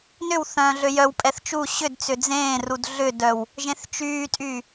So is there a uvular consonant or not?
no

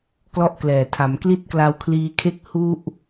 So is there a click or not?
no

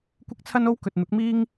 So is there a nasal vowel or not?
no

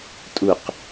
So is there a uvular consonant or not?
yes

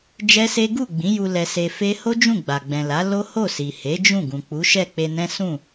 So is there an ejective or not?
no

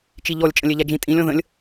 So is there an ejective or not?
yes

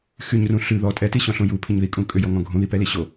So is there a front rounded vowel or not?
yes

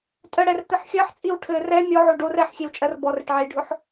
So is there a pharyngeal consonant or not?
yes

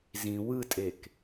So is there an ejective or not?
yes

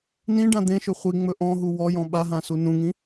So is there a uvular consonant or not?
yes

